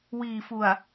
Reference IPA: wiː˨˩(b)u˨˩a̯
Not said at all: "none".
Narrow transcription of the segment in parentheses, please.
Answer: f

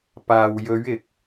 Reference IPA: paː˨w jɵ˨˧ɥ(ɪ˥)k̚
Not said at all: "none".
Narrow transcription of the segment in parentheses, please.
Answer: ɪ˨˥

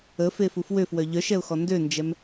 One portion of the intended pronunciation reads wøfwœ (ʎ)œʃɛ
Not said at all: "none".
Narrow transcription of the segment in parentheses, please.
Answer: ʎ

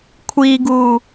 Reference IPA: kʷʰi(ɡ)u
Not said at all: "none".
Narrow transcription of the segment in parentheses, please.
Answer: ɡ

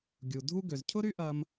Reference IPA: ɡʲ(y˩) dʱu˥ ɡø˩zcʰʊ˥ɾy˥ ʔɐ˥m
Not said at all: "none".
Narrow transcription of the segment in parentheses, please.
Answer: u˩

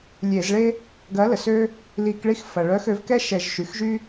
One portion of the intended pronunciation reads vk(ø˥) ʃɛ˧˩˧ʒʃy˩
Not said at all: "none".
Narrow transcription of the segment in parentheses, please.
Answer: ɛ˥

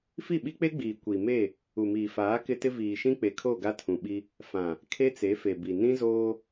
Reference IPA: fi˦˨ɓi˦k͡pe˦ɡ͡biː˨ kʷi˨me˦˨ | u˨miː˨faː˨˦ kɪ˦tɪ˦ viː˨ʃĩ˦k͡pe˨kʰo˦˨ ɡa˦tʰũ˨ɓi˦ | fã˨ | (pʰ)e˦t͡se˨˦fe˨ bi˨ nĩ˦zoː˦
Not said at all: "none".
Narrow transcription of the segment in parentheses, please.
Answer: kʰ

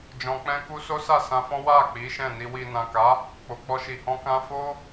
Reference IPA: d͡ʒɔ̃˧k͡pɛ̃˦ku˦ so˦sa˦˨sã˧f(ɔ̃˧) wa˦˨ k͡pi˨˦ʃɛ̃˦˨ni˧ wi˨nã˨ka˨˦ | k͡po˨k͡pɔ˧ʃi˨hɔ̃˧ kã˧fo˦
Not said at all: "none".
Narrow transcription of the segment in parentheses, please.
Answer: ɔ̃˦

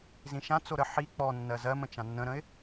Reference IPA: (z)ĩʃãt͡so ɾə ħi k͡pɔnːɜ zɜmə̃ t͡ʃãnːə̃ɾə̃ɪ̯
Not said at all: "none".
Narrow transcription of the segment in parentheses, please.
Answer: z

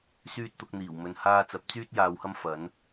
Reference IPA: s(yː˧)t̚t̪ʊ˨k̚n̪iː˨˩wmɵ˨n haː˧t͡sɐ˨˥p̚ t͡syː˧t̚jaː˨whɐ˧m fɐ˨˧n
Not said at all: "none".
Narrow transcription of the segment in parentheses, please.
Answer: yː˧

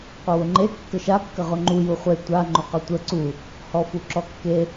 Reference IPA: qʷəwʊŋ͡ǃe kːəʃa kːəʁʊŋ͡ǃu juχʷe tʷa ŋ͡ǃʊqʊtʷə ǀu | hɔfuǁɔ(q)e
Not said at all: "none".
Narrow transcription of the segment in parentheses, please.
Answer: kː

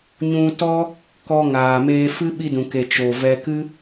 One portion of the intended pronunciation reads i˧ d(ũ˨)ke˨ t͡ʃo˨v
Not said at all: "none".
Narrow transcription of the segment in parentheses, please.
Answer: ũ˨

